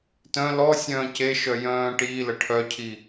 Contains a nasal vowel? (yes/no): yes